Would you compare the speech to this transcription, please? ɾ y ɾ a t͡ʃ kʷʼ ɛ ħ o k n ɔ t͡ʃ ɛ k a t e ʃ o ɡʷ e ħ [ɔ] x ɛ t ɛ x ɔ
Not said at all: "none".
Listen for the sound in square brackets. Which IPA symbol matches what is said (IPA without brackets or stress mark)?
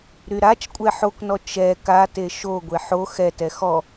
o